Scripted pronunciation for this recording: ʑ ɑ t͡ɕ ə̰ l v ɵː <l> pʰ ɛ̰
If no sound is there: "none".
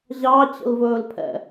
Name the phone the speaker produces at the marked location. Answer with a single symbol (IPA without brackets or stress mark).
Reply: l